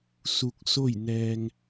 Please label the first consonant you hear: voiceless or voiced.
voiceless